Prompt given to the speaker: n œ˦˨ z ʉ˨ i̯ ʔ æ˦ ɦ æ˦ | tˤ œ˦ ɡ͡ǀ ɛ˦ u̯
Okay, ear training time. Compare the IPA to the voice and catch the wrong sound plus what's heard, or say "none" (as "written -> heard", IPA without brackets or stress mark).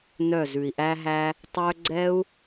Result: none